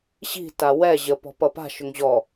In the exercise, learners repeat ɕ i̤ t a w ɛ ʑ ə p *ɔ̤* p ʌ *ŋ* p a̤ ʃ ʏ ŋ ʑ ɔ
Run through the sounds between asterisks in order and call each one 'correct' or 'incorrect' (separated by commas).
correct, incorrect